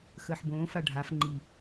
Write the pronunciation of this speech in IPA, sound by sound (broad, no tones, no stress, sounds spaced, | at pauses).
x əː ħ b õː f a ɖʱ a f ŋ͡ǃ i